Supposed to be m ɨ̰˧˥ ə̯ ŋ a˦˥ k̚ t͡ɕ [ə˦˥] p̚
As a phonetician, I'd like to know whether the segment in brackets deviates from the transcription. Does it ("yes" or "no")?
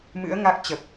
yes